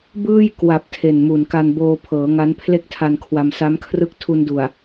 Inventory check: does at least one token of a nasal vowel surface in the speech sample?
no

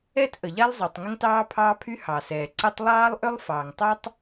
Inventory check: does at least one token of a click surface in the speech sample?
yes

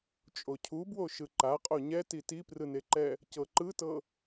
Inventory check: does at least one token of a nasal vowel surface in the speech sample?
no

